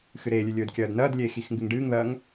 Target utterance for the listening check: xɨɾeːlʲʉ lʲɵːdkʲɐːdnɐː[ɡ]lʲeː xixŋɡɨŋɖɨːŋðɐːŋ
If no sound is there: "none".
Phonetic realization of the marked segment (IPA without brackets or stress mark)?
d